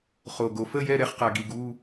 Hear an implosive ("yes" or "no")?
no